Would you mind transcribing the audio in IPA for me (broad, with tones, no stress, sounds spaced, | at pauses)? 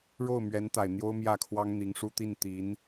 ɻ o˥˩ ʊ̯ m ɥ ɛ˧˥ n t̪ a˨˩ ɪ̯ n̪ j o˥ ʊ̯ m j ä˥˩ kʰ w ɑ˥ ŋ n̪ i˧˥ ŋ ʂ u˥ t̪ i˥˩ n t̪ i˧˥ n